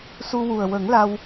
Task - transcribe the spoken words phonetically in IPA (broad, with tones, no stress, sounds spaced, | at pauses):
s u˧ w u˨˩ ə̯ w ə˨˩˦ ŋ l a˧ w